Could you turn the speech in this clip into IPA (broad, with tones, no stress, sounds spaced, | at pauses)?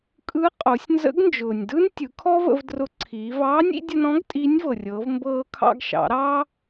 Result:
kʼ ɯ˧˥ qʼ o˩˧ sʲ n z ə̰˧˥ ɡ n d͡ʒ ʊː˩ nʲ d ɯ˥ n tʲ ɯ˩˧ kʰ ɔ˥ v ə̰˧ v d r ʊ˧˥ ǀʰ iː˩˧ v ɑː˧˥ nʲ ḭ˩˧ dʲ ə˧ n ɔ̃˧˥ ɡ tʼ iː˧˥ nʲ v ɤ˩ rʲ ɤː˩˧ v m b ɤː˧ kʰ ɑ̰˧ ɡ ʃ ɑ̰˩˧ ɾ ɑ˥